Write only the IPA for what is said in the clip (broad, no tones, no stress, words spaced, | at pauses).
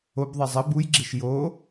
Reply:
obðˤe zˤɘ bujɡ͡ǁeʃ jo